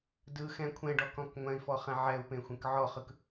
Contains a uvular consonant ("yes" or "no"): yes